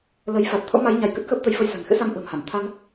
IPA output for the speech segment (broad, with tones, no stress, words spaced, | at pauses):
lə˨˦jfa˨˩t̚ t̪ʰo̰˧˥ma˨˦j ɲa˧jkə˦˥t̚ xəː˦˥p̚t̪ə˨˦jfə˧j sa̤˨˩nxɨ̰˧˥sa˧m ʔə̤ː˨˩mha˧˩m t̪ʰa˧n